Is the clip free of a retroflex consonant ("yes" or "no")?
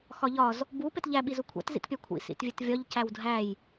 yes